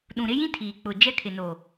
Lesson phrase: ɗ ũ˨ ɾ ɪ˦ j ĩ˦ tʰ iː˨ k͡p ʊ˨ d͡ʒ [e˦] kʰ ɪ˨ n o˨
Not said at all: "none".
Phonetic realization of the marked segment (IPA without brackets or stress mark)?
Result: ɛ˦